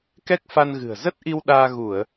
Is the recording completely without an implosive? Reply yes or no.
no